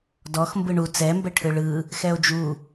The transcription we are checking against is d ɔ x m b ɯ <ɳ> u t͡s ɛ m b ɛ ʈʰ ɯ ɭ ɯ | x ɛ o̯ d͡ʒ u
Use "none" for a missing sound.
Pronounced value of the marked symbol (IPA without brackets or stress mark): ɳ